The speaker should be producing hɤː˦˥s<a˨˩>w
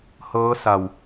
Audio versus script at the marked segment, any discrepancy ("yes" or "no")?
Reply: no